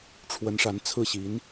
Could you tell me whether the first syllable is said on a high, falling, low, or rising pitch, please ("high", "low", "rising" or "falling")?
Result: rising